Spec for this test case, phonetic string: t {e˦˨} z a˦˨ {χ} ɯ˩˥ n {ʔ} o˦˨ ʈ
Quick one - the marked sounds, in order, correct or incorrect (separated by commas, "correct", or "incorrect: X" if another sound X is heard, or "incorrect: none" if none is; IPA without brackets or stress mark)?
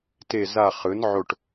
correct, correct, incorrect: ʕ